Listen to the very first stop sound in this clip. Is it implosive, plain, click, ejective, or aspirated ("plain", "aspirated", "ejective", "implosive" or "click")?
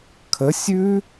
aspirated